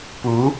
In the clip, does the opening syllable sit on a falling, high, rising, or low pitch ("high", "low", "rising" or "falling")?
rising